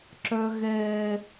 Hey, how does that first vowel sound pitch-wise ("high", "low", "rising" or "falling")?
high